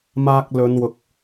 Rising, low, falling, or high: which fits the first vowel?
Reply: high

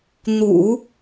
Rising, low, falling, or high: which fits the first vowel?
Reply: low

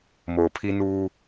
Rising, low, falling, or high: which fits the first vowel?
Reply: low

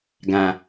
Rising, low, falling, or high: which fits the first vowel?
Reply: low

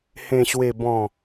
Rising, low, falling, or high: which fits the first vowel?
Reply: low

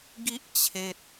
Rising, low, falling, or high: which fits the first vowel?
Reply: high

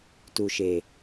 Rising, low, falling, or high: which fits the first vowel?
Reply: low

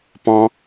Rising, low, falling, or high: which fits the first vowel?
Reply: high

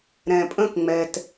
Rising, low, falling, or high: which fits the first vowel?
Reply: low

